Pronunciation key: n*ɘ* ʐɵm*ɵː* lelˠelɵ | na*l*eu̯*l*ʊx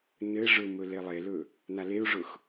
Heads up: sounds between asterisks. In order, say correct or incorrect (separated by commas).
correct, incorrect, correct, incorrect